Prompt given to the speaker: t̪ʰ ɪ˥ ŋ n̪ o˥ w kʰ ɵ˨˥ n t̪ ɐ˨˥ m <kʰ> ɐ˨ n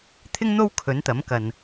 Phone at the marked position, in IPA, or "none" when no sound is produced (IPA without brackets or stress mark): k